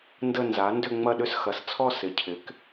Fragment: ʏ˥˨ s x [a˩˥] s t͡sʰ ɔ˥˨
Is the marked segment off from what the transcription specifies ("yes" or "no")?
yes